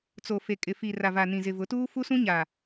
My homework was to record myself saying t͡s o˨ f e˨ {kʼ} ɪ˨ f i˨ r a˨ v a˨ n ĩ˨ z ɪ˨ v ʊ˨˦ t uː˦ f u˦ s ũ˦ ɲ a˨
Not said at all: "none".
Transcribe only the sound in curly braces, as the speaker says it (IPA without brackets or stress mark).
kʼ